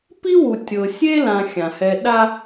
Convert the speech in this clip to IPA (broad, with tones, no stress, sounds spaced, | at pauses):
p i˥ w u˨ tʲ ɤ˨ sʲ e˥ l ã˨ xʲ ã˩ h ɛ˨ ɗ a˦